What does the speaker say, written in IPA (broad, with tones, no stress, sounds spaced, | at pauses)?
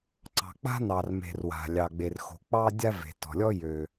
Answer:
ǀ ɑ̤˩ k͡p a̤˥ n ɑ˩ r m e̤˩ r w a̤˩ lʲ ɑ˩ ɡ͡b e˩ r x o̤˩ k͡p ɑ˥ dʲ a˥ v e̤˩ t ɔ̤˩ lʲ ɔ˥ j ø˩